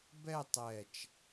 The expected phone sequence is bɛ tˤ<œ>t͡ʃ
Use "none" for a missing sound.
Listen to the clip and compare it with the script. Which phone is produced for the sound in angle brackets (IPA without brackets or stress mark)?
ɛ